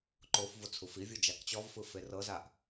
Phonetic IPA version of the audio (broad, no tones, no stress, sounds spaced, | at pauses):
ǃ o f v o t͡sʰ u f i vʲ u d͡ʒ a k t͡ɕ ɔ v f ɯ f e r ɤ z a ʔ